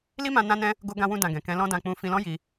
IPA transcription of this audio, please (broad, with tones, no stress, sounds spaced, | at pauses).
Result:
l i˦ m ã˧ n ã˦ n ɛ̃˦ | ɡ o˦ ɡ ã˧ w ũ˧ d ã˨ ɡ ɛ̃˨ k ɛ̃˨˦ l ɔ̃˦ d ã˧ k͡p ũ˧ f ĩ˧ l ɔ̃˦ j i˧